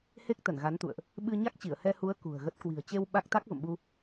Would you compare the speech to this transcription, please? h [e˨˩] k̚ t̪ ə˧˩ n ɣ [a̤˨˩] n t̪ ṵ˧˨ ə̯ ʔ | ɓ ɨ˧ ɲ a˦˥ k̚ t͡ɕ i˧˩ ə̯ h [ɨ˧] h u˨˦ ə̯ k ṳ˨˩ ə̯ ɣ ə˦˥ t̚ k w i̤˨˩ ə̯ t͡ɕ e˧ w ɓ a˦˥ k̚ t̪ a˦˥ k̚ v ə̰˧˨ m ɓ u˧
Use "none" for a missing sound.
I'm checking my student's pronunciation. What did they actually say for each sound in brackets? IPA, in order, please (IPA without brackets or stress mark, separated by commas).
e˦˥, a˨˦, ɛ˧